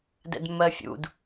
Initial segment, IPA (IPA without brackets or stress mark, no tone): d